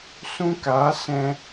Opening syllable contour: high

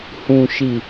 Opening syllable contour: low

